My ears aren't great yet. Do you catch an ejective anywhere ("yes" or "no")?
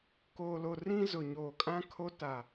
yes